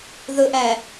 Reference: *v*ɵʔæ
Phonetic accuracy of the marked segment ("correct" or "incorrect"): incorrect